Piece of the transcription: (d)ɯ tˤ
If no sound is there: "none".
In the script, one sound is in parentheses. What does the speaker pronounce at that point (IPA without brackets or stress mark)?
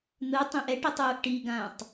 n̪